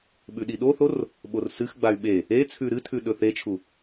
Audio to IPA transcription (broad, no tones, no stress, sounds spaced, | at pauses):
ɓ ʉ ɗ i ɗ o θ o r | ɓ o r s ɨ x ɡ͡b a y̯ ɓ e | e t͡sʰ ʉ ɾ ɨ tʰ ʉ ɗ ɵ θ e t͡ʃʰ u